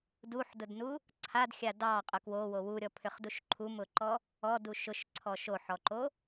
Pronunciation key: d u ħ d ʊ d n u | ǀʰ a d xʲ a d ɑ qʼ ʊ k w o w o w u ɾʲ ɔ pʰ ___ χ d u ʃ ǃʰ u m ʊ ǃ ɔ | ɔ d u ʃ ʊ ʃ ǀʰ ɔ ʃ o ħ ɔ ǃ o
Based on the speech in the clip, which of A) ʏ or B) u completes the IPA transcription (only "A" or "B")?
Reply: A